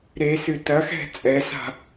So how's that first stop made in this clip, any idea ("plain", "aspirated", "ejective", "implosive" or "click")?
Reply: plain